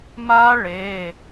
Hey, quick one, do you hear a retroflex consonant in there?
yes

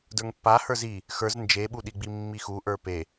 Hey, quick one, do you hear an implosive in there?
yes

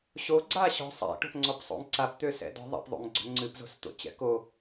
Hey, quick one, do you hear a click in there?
yes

